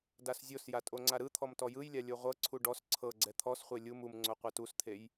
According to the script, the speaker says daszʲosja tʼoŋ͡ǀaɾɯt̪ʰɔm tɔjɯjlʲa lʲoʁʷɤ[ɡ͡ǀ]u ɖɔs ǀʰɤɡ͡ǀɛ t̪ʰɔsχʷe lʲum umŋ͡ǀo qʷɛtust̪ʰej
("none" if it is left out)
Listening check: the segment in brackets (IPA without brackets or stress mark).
ǀʰ